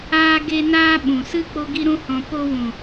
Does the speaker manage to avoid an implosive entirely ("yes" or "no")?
no